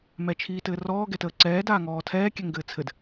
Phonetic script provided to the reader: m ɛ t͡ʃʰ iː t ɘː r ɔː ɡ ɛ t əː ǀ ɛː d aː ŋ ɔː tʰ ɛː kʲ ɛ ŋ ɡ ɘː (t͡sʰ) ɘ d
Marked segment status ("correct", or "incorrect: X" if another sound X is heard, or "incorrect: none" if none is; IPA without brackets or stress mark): correct